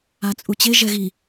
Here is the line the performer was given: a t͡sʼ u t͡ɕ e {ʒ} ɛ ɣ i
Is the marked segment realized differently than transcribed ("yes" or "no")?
no